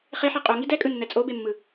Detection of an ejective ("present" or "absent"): present